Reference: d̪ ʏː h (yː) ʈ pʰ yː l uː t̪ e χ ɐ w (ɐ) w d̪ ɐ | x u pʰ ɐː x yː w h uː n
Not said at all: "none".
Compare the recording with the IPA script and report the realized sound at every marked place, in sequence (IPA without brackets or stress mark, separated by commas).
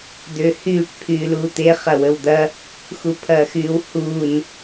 yː, ə